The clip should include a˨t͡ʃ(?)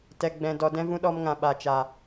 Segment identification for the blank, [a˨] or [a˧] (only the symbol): a˨